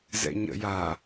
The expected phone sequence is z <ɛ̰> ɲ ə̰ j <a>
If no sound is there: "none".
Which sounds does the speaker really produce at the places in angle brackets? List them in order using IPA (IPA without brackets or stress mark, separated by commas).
ɛ̰, a